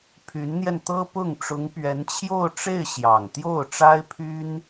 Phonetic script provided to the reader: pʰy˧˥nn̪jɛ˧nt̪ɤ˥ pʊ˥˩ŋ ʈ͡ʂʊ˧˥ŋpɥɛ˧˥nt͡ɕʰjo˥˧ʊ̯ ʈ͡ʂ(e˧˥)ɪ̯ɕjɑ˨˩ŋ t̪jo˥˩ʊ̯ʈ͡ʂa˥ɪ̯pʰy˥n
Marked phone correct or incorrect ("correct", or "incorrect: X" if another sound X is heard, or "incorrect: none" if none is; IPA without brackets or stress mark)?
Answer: incorrect: e˥˩